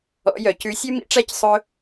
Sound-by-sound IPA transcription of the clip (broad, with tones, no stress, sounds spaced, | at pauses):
ɔ̰˨˥ j œ˩˧ c ʉ˨˥ sʲ ʉ˥ m ḭ˥ ʈ͡ʂ æ˥ c sˤ ɵ˥